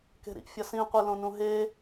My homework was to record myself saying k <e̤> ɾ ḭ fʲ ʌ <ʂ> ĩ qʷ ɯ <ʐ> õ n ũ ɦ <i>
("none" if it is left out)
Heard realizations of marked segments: e̤, s, l, e

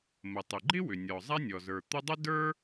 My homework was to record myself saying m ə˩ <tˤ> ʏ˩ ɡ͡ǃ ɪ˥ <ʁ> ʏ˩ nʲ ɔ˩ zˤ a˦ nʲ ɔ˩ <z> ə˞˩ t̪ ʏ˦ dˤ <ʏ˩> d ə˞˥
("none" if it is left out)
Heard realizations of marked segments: tˤ, w, z, ʏ˥

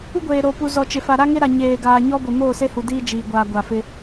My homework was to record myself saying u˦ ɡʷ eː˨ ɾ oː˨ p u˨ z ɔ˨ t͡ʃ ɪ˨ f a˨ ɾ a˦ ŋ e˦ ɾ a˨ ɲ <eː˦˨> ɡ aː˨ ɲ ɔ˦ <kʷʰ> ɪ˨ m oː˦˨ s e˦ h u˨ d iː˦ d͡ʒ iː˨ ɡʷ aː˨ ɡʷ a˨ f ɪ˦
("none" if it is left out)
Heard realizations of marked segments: eː˨, ɡʷ

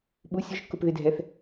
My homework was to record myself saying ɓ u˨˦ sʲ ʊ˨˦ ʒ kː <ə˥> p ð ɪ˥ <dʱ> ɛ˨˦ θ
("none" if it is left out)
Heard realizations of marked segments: ʊ˥, dʱ

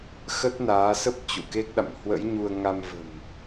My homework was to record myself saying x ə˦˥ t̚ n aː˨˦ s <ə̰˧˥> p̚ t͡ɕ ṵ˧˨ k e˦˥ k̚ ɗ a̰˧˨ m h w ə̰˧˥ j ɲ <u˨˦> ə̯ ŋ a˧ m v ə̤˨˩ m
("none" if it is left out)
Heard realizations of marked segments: ə˦˥, u˧

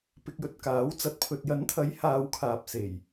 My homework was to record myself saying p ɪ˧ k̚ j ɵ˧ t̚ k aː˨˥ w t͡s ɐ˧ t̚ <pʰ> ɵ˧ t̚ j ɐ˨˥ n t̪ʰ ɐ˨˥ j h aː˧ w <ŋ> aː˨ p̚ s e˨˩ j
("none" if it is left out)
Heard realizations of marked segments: pʰ, kʰ

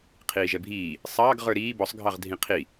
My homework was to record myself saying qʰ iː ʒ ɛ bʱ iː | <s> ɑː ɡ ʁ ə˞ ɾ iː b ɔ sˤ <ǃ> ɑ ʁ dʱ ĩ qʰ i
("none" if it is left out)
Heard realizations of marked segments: sˤ, ɡʱ

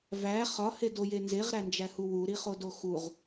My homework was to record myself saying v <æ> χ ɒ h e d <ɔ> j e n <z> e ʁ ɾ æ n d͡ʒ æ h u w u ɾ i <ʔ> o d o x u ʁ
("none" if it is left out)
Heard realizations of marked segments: æ, o, z, χ

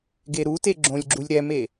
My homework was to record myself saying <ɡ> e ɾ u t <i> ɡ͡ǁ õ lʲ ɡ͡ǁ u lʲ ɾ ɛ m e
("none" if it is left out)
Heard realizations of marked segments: ɡ, e

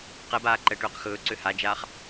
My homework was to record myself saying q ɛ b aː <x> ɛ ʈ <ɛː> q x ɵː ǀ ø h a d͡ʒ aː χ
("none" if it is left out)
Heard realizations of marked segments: ǃ, øː

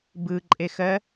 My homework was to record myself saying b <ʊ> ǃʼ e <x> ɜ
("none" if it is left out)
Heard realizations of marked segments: ɯ, x

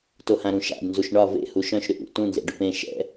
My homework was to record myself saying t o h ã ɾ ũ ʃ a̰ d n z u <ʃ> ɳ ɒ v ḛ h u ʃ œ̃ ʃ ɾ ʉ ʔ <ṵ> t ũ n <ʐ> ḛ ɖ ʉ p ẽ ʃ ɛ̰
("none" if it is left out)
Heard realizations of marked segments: ʃ, ṵ, z

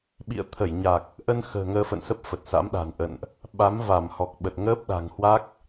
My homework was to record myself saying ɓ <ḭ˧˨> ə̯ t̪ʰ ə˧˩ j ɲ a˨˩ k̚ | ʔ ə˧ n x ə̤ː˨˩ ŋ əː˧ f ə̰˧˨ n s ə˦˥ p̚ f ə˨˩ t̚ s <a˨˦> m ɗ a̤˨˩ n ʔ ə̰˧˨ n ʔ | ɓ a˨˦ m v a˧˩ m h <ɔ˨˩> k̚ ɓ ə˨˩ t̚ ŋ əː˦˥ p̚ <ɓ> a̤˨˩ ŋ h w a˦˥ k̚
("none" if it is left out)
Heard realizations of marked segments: ḭ˧˨, a̰˧˥, ɔ˨˩, ɗ

